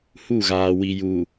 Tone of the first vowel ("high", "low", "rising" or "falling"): falling